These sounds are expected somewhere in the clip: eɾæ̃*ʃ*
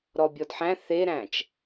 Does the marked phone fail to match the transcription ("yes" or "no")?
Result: yes